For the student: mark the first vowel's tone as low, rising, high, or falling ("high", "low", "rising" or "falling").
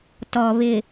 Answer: low